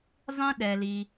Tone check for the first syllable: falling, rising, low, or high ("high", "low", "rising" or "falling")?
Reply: high